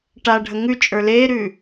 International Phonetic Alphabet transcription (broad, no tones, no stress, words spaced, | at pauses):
ʈaɖʱə ŋʉt͡ʃʼə˞ leːɾʉː